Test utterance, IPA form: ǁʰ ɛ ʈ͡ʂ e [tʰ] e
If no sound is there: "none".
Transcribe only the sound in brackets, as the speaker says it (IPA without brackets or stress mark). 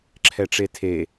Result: tʰ